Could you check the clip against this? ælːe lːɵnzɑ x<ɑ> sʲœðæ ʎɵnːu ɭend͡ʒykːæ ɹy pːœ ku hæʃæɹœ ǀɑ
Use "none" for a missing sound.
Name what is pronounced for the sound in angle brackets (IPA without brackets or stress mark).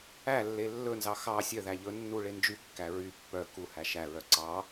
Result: ɑ